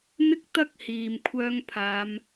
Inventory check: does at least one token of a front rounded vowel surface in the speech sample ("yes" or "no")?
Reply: yes